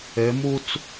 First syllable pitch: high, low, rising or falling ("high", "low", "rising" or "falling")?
rising